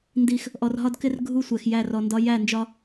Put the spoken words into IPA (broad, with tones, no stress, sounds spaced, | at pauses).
n d i˦ x | ʔ ɔ˨ r ɦ ɒ˦ d k ɪ˦ r ɡʱ u˦ sʷ ɛ˨ x j æ˦˨ r ɔ˨ n d ɒ˦ j æ˦˨ n d͡ʒ ɒ˦